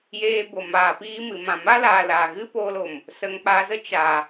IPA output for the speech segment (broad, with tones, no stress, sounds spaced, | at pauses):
j eː˧ b o˨ m aː˨ p iː˧ m ɨ˨ m ã˨ m a˦ l aː˨ l a˨ ɣ ɨ˦ p oː˧ l o˨ m | s ə˨ ŋ k͡p a˨ z ə˦ t͡ʃ a˨